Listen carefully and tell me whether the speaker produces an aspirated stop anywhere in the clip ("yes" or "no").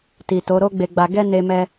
no